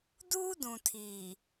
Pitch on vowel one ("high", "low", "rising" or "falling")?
high